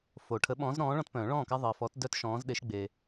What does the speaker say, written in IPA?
fo˨ ʈʰə˨˦ɓɔ̃ː˨˦zɾɔ̃ː˨˦ ɭɔ̃˦tpœ̃ː˨˩˦ɭɔ̃ː˥˩ka˦ ðˤəː˨fɔ˨˩˦t dœ˦tʃɔ̃ː˨˦zɗe˨˦ʃ ɡ͡be˨

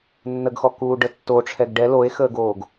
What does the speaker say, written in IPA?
nːəɡxɔkuːɖə tːoʈ͡ʂʰɛɡ ɖɛ loe̯xəːɡoːɡ

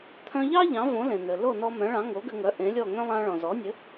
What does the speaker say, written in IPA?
t̪ʰœ̃˧ʎɑ˥ ʎɑ̃˩˥võ˩˥ lẽ˩nɘ˩ lo˥˩nɔ˧mœ̃˩˥ɭɑ̃˩˥ ŋo˩˥ɡɘ˧ŋœ˩˥ ʔẽ˩˥lʲɔ˥˩ŋœ̃˥ lˠɑ̃˧ɭɔ̃˩ zɔ˩˥nʲɘ˩˥

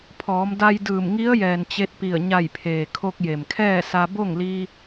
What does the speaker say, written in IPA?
pʰɔː˩˧mda˧jdɯː˧˩m ŋi˧˥ə̯jɛː˩n t͡ɕe˧t̚pi˧˩ə̯ ɲa˧˩jpʰeː˩ kʰo˧k̚je˩mkʰɛː˥˨ sa˧ bo˥˨ŋli˧

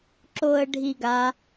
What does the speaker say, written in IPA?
ǁoə̯ɖʱiɡa

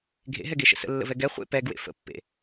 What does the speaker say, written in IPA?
ɡʱḛɦɛɡeʃə̰ sə̰lːə̰vɛ ɡɛ χʷḛ pɛɡwḛ fə̰pːḛ

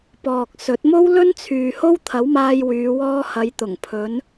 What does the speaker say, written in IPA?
pɔː˨k̚ sɵ˨˥t̚mo˥w lɵ˥nt͡sʰyː˨ ho˥wt̪ʰɐ˨˥wmaː˧j wyː˨˧wɔː˧hɐ˨˧jt̪ʊ˨˩ŋ pʰɵ˨˧n

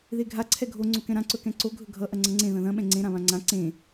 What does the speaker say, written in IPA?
ðeɡʱa ǀʰɛɡʱo ŋ͡ǀokɛ̃ɾã ǀɵkɛ̃ǀo ɡʱɵɡʱʌ ʔɐŋ͡ǀʌŋ͡ǀẽ ðɐ̃ðɐ̃ ɓɛ̃ŋ͡ǀẽ ɾãβãŋ͡ǀã ǀẽ

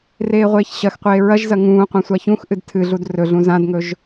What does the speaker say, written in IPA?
reːʁʷeːçɕɐxqʷeː ɹɐʒzɐ ŋũːqʷã sʷaçũxʔɨd tʰɨɮud rɵɮũ zãdŋɵʒ

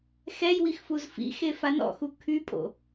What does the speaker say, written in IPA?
xɛjwixfuz fḭxefa nɔ̰xu kʰypʼo̰

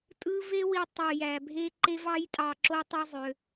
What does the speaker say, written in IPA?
tʼɯ˦ ve˦wi˧ tˤɯ˨ jæ˨bʱe˦ ǃe˦vɑ˦jtʼɑ˧ǁo˦ tˤɯ˦zˤø˧

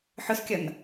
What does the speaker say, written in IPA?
ħʊskʲʌn

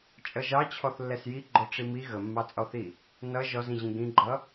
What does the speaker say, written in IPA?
t͡ʃʼʌʒɑt͡ɕʰɔθ lːɛsjiɡ͡ǃɔ ʈ͡ʂimi ɣəmːɑt͡sʼɔθi | nʌ ʒɔzĩʑĩ ɡĩɡ͡ǃʌ

